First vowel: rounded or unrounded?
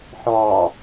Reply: rounded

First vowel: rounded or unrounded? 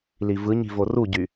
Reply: unrounded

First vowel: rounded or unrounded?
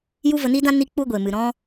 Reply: rounded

